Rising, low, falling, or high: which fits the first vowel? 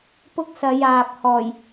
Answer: high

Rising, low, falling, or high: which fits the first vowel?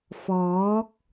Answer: rising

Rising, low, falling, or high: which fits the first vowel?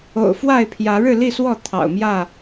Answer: low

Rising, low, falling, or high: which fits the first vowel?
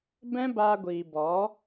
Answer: high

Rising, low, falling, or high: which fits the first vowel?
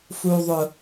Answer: high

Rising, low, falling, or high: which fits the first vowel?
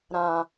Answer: low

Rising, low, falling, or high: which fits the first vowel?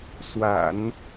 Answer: low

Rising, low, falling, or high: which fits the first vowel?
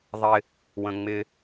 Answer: high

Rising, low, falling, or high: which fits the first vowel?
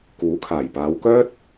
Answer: rising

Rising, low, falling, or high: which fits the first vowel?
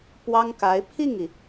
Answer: high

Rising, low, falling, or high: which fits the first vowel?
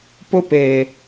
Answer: high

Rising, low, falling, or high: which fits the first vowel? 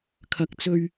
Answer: high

